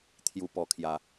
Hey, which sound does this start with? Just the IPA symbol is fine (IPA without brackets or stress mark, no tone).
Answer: t̪ʰ